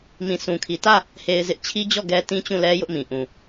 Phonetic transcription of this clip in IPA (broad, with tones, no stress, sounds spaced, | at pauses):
m ĩ˨ sʰ ũ˨ kʰ i˨ t ä˦˨ | h e˦ ɪ̯ z ɪ˦ ʔ t͡ɕʰ i˦ d͡ʑ ɔ˦˨ ɡ ɛ˦ t ĩ˦ t͡ɕ ũ˦˨ l ɛ˦ j ʊ˦ ʔ m ĩ˨ ʔ ũ˨